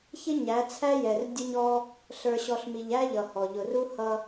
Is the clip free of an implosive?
yes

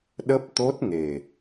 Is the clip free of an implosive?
no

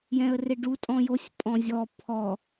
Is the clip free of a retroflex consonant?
no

